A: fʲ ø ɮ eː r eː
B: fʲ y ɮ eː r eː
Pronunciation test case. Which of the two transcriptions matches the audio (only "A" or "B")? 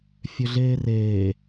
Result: A